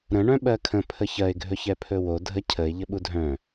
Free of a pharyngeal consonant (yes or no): yes